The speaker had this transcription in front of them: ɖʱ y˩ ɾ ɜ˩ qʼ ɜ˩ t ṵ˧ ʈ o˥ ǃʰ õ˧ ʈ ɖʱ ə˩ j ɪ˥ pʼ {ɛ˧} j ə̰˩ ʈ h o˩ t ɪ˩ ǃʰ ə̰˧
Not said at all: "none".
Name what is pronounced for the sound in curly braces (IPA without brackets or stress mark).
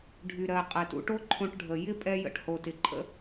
ɛ˧